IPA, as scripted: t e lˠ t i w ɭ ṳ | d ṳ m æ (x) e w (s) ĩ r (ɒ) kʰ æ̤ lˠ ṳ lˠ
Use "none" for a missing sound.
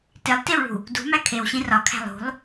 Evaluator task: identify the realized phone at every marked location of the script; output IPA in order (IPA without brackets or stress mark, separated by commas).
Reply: kʰ, ɕ, ɒ